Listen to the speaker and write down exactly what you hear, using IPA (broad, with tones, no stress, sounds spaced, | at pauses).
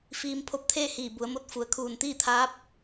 f iː˧ m pʰ o˧ p̚ t̪ʰ eː˥˨ h iː˧˩ b u˩˧ ə̯ m o˧˥ t̚ f u˩ ə̯ kʰ uː˧˩ n t̪ iː˥˨ t̪ʰ aː˧˥ p̚